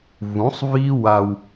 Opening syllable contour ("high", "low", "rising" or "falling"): rising